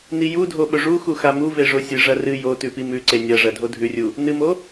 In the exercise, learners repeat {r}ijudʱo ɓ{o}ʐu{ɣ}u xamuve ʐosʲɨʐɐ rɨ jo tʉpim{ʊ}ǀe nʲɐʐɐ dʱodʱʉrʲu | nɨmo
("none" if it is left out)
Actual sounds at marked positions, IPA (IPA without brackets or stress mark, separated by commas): n, ɵ, x, ʉ